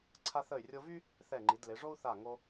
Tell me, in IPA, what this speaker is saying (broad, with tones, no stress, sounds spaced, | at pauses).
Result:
ǀʰ a˧ θ ə˧˩ y̯ rʲ o˧ v y˥ | θ ɛ˧˩ ŋ͡ǃ i˩˧ d l e˩˧ ʐ o˥ u̯ θ a˧˩ ŋ o˧